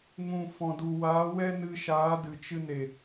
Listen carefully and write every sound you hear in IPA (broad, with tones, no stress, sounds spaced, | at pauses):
ŋ ũ˨ f ɔ̃˨ d u˨ w aː˨˦ w ɛ˦ n ɨ˧ ʃ aː˨˦ d ɨ˨ t͡ʃ ɨ˧ n e˨